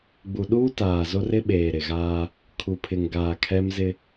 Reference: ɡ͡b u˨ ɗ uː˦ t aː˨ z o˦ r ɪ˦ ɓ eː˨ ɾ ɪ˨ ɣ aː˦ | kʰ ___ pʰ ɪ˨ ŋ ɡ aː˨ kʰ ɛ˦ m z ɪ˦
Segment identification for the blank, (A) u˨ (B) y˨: A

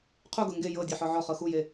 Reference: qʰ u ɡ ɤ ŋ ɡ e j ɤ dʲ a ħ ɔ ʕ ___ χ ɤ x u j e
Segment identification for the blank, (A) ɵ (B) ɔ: B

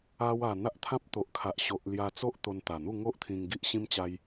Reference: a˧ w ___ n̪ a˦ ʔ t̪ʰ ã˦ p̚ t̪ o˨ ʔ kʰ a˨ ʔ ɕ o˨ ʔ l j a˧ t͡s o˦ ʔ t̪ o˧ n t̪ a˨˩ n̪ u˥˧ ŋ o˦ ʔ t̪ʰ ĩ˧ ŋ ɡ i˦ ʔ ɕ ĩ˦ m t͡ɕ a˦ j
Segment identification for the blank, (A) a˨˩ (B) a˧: A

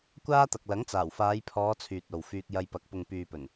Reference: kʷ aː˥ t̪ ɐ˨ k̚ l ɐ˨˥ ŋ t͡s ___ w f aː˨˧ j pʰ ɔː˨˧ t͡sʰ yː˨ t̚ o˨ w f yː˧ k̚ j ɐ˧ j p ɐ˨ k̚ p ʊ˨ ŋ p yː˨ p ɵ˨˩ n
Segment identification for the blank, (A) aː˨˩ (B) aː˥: A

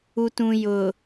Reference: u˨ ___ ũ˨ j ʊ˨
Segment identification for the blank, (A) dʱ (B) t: B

